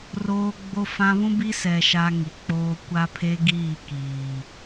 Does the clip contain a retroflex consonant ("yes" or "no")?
no